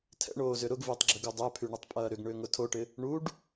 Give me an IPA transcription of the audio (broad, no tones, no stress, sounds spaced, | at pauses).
tʰ ɛ̰ ɳ oː z ʏ ɾ ʊ ɡ v ɪː tˤ ɡ͡ǁ ʏ ɡ u dˤ œ pʰ y ɳ ʊ tˤ pʼ ɐː ɾ ʏ ɡ ɳ ʏː ŋ ʊ tʰ o ʈ ɪ | ɳ u ɖ